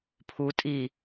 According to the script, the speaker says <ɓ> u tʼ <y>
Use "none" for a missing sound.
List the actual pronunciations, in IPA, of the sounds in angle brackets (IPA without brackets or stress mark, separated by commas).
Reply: pʰ, i